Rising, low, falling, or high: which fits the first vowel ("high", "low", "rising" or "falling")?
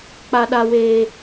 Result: high